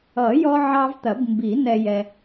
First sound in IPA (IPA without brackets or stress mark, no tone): ʌ